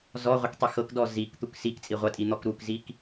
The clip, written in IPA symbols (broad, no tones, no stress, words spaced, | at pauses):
zɔʁʷɤktˤi xɤkdɔ zikt̪uk sikt͡sʼi ʁʷɐtʼin̪ɔk ɾukzik